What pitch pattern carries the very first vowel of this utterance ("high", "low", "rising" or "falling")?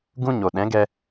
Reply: high